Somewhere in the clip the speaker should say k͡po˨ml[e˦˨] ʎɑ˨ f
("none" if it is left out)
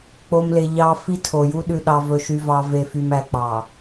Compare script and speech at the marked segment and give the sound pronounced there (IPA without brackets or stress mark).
e˨